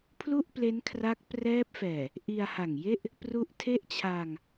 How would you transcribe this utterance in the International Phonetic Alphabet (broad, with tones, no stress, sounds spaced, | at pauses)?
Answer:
pʰ l u˥˩ ʔ p l e˦˥ n kʰ r a˦˥ k̚ p r ɛː˦˥ p̚ f ɛː˨˩ | ʔ i˧ a̯ h a˨˩ ŋ j e˥˩ ʔ | p r u˦˥ ʔ tʰ e˥˩ ʔ t͡ɕʰ aː˧ ŋ